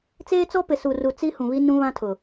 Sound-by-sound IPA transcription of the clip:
t͡s eː˦ t͡s ɔ˦ p ɪ˨ s u˨ r u˨ t͡s i˦ h ũ˨ β i˦ n ũ˦ β ã˦ tʰ ʊ˨

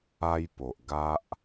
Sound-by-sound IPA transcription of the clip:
a˦ j p o˨ ʔ ɡ a˦ ʔ

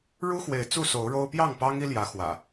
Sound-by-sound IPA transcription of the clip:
ɻ u˦ x w e˨˦ ɪ̯ t͡s u˥˨ s o˨˦ ʊ̯ ɻ o˦ ʊ̯ p j ɑ˥˨ ŋ p ɑ˦ ŋ i˦ l j ä˨˦ x w ä̰˨˩

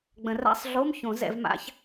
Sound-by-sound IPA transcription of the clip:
ɡ͡b ə̃˨˩˦ r a̰˧˥˧ sˤ ɮ o˧˥˧ m ç õ˨˩˦ z ɛ̰˨˩˦ v m a̰˧˥˧ ç

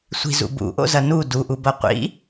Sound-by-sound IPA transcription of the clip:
sʷ i̤ z ṵ b ṵ ʔ o̰ z ɐ n u d u ʔ u b ɐ qʷ ḭ

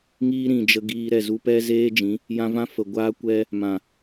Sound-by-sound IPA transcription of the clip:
ŋ iː˦ ɾ ĩ˨ d͡ʒ ə˧ ɡ iː˧ ɾ ɛ˦˨ z u˦ p ɛ˦ z eː˦ d͡ʒ ĩ˨˦ | j ã˧ v ã˦ f ə˨ ɡʷ aː˦ kʷ ɛ˦ | m ã˨

